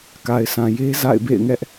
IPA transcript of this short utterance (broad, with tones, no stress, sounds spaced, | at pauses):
k a˨ ɪ̯ sʰ ã˨ j e˦ z a̰˦˨ ɪ̯ b ḛ˦˨ ɪ̯ ŋ ɛ˦ ʔ